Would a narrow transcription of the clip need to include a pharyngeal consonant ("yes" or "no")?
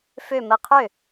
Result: no